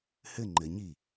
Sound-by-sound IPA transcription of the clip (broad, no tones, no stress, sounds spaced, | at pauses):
h ɘ ŋ͡ǃ ɘ ɲ i